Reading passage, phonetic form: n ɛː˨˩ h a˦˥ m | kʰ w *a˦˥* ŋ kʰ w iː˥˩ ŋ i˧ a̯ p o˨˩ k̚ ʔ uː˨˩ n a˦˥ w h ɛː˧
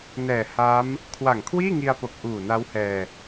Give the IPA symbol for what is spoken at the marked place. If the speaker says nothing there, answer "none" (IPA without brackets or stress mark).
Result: a˨˩